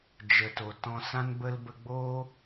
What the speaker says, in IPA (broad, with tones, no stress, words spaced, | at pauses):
d͡ʒə˨to˨ tɔ̃˧sã˦nbə˦l bə˧ɡ͡boː˦